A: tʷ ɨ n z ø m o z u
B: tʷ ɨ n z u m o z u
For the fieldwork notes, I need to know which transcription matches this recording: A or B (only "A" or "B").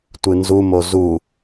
B